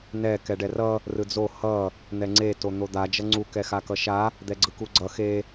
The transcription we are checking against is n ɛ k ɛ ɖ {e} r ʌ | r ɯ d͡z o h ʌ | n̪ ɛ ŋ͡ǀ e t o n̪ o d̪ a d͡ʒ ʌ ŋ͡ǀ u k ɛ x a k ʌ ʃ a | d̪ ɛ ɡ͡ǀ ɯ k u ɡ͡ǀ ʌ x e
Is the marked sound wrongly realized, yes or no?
yes